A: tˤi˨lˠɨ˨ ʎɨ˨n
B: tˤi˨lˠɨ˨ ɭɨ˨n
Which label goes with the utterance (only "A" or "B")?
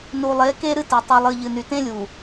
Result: A